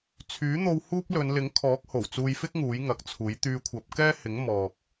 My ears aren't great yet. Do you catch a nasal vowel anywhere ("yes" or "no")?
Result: no